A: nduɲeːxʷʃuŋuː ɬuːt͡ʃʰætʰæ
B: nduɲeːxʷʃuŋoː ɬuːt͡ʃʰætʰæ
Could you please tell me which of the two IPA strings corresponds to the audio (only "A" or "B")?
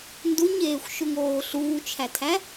B